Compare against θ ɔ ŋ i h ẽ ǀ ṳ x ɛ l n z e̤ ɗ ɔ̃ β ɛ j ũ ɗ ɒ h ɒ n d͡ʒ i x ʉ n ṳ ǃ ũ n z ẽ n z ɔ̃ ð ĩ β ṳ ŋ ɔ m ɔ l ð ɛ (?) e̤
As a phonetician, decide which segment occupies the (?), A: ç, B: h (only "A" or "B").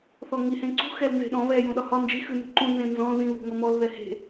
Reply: B